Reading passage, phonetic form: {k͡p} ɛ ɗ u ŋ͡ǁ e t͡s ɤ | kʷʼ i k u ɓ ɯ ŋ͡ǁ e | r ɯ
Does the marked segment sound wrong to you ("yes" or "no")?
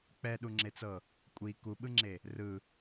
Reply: no